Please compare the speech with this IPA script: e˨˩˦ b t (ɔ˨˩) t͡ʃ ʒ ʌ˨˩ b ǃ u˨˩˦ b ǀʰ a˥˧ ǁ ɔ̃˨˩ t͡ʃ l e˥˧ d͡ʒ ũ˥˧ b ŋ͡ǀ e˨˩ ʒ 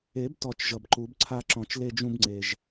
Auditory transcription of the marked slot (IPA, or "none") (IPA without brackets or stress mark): ɔ˨˩